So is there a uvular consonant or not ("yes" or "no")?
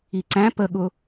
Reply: no